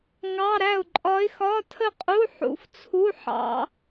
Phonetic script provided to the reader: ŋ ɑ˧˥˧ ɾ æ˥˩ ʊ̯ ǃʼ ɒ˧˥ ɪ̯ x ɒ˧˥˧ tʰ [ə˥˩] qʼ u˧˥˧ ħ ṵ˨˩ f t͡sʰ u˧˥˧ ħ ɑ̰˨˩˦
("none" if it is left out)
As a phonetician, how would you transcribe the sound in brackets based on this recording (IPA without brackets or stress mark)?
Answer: ə˥˩